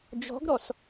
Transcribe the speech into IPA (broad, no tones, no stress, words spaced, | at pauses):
d͡ʒɔ̤ɡɾɔs